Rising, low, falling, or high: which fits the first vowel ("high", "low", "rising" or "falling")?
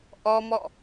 high